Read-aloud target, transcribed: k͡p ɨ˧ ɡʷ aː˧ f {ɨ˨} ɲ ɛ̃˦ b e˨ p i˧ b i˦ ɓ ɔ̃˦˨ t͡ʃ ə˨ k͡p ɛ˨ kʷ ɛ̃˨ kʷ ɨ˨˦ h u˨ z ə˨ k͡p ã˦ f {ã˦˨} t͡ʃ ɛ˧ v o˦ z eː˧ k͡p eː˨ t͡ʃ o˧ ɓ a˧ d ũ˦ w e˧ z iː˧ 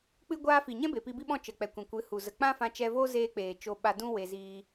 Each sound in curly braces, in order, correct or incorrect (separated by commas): incorrect, incorrect